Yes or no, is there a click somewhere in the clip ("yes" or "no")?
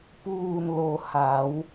no